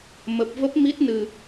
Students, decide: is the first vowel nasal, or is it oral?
oral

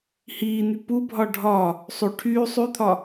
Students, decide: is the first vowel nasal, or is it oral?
oral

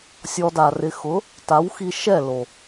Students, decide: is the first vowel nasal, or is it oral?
oral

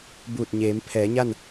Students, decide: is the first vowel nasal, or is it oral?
oral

